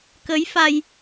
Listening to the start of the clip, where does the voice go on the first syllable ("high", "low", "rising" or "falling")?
rising